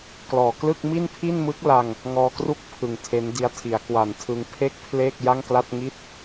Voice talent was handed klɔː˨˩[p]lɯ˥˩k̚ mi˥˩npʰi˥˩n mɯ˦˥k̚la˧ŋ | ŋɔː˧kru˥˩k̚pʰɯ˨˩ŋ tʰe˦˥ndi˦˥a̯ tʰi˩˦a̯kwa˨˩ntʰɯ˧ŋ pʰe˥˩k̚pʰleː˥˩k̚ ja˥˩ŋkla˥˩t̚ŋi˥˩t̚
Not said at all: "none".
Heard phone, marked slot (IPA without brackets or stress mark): k